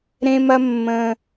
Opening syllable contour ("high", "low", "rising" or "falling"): high